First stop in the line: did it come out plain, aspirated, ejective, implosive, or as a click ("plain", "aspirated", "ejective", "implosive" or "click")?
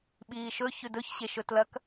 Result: implosive